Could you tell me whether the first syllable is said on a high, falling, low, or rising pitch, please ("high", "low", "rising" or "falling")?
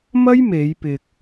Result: high